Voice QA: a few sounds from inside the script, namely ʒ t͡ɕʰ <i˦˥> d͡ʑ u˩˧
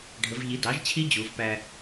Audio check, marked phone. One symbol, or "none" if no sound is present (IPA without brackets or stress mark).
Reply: i˦˥